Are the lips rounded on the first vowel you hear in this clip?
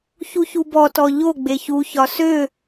yes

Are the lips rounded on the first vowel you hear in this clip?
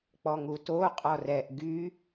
yes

